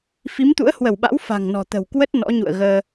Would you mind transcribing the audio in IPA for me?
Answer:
f i˨˦ m t̪ ṵ˧˥ ə̯ h w ə˧˩ w ɓ a̰˧˥ w f a̤˨˩ ŋ n ɔ̤˨˩ t̪ ə̤˨˩ w k w ə˦˥ t̚ n ɔ̰˧˥ ɲ ṵ˧˨ ə̯ ɣ əː˧

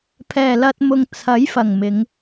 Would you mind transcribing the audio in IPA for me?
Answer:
pʰ ɛː˨˩ l ɐ˧ t̚ m ʊ˨ ŋ t͡sʰ ɐ˨˥ j f ɐ˨˩ ŋ m ɪ˨˧ ŋ

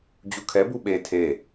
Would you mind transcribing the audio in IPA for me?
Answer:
d͡ʑ u kʰ ɛ b u ɓ e tʰ e

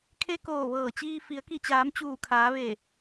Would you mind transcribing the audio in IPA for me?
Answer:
kʰ e˧ k oː˧˩ ʋ ɤː˧˩ t͡ɕ iː˧ f i˩˧ ə̯ k i˧˩ t͡ɕ aː˩˧ m t͡ɕ uː˧˩ kʰ aː˩˧ ʋ e˧˩

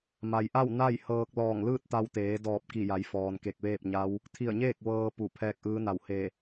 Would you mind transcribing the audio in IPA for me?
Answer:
m a˩ j ʔ a˥˨ w n a˥˨ j h ɤː˧ k̚ l ɔː˧˩ ŋ l ɯː˥˨ t̚ t̪ a˧ w t̪ eː˩˧ d ɔː˧˩ p̚ k i˧˩ j a˩˧ j f ɔː˩ n k e˧˩ k̚ ʋ eː˥˨ p̚ ɲ a˧˥ w | t̪ʰ i˧˩ ə̯ ɲ eː˥˨ k̚ ʋ ɤː˧ p u˧˩ pʰ ɛː˧ k̚ ʔ ɯː˧˥ n a˧˩ w h e˧˩

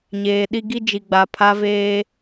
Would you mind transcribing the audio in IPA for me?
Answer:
ɲ eː˨ ɗ i˦ ɡ i˦ d͡ʒ i˨ ɡ͡b a˨ pʰ a˦ v eː˦

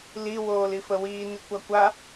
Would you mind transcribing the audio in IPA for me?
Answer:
l i w oː l i f ə w iː n i kʷ a kʷ a

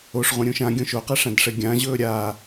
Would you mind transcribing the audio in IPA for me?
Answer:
o ʂ ʁ ũ ɾʲ ũ ʃ ã ɡʲ õ ʃ o q ɛ ʂ ã d ʂ ɛ ɡʲ ã ʑ ɵː ɾʲ a

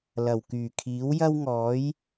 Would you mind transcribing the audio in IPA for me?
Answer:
l ɐ˨˩ w k yː˨˩ kʰ iː˨˥ w j ɐ˥ w ŋ ɔː˨˥ j

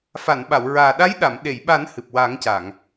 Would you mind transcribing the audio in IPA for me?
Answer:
f a˨˩˨ n ɓ a˨˩˨ w ɹ aː˨˩ ɗ a˧˥ j ɗ a˨˩˨ m ɗ e˨˩˨ j ɓ a˨˩˦ n h ɨ˨˩ p̚ w a˨˩˦ ŋ c a˨˩˨ ŋ

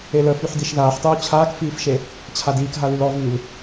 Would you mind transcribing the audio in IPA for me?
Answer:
e l ə f y ħ d i ʃ ð aː ħ tˤ uː t͡ɕʰ aː k f iː f ʃ e | t͡ɕʰ a d iː k ɦ a l y l ɔ v iː l

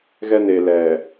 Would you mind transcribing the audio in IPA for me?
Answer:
ɣ ɛ˦ n e˨ l ɛ˨

